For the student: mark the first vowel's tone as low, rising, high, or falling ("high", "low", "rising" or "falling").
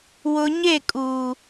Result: low